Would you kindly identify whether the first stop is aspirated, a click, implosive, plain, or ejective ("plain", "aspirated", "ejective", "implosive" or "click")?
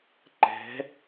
click